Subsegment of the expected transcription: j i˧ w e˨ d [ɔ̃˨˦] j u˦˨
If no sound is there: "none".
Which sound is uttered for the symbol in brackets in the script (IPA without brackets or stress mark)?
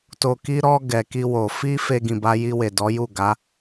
ɔ˨˦